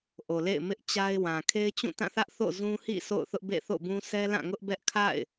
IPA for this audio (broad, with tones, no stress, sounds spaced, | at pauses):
ʔ o˨ l ḛ˦˨ ɪ̯ m ɪ˦ ʔ t͡ɕ a˦ ɪ̯ w ã˨ kʰ e˦ ɪ̯ t͡ɕ ũ˦˨ t ã˦˨ θ ä˦ ʔ θ o̰˦˨ z ũ˦ h ḭ˦˨ sʰ o̰˦˨ ʊ̯ θ ʊ˦ ʔ b ḛ˦˨ θ o̰˦˨ b ũ˦ sʰ ɛ˦ l ã˦˨ ŋ ʊ˦ ʔ b ɛ˦ ʔ kʰ a̰˦˨ ɪ̯